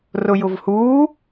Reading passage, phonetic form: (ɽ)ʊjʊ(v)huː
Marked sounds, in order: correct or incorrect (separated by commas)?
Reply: incorrect, correct